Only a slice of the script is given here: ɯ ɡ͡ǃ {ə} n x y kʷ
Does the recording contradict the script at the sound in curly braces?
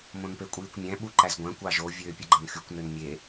yes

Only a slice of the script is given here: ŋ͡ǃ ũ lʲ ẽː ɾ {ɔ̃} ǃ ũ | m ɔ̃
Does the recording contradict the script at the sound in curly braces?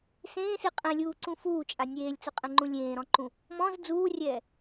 no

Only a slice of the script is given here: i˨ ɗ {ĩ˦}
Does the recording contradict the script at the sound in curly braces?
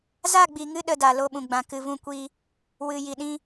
yes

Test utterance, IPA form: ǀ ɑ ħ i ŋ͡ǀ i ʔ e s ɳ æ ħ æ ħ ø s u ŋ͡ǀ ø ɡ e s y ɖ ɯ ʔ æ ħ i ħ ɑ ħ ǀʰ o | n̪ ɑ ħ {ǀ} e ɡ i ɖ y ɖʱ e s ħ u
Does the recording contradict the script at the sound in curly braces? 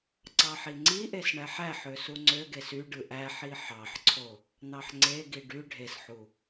yes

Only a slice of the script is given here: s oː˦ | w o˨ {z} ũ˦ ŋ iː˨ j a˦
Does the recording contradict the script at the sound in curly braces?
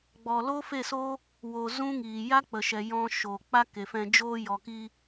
no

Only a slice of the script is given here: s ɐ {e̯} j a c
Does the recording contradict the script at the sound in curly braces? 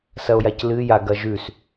yes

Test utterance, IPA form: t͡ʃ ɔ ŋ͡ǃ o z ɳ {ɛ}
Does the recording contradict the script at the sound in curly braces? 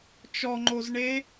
yes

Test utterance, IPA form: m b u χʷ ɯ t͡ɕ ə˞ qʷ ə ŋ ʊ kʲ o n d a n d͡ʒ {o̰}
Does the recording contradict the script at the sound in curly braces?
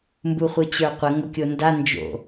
no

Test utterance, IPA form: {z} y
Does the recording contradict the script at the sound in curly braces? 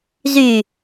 no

